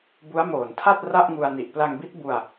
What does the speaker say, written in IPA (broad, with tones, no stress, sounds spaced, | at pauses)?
b u˦˥ a̯ m oː˨˩ n tʰ a˥˩ t̚ r a˥˩ ʔ ŋ u˧ a̯ n i˨˩ ʔ p l a˧ ŋ b i˦˥ t̚ b u˧ a̯